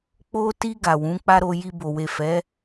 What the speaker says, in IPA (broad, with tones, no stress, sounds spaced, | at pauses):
k͡p o˧ t i˧ ɡ a˨ w ũ˨˦ k͡p a˦ ɾ o˧ j i˧ b o˨ w e˨ f ɛ˨˦